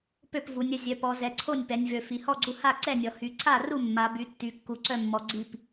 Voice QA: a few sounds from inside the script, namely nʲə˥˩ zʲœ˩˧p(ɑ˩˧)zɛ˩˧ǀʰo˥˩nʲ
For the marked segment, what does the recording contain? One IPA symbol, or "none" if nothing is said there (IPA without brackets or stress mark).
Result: ɔ˩˧